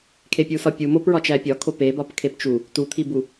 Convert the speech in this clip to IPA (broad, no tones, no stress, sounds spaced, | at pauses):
kʰ e pʲ u s ɒ pʲ u m o p ɹ ɒ t͡ʃ æ pʲ ɒ kʰ o p e b ɒ p kʰ e p t͡ʃ u | t u t̪ʰ i b u